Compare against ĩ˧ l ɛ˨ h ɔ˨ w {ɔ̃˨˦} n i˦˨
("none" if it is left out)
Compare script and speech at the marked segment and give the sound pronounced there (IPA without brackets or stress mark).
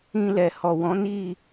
ɔ̃˨˦